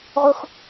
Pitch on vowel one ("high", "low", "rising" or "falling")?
high